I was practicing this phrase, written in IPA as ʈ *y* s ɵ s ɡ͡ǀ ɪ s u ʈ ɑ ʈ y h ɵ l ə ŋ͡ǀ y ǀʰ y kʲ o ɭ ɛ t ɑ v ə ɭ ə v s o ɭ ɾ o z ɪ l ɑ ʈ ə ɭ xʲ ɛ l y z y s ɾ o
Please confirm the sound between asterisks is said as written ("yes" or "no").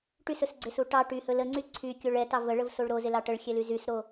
yes